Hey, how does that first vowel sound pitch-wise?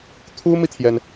high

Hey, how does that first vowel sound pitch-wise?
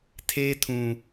high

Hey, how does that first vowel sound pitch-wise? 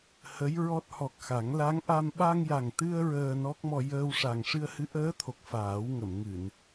rising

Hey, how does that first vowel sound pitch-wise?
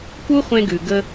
high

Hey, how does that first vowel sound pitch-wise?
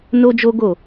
high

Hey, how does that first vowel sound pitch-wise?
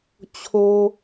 low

